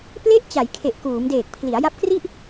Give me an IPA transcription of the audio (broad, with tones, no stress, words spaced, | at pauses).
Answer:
ple˦˥ʔt͡ɕa˩˦j kʰe˨˩ʔkuː˩˦mdeː˨˩k̚ pʰli˩˦a̯ja˦˥p̚kri˥˩ʔ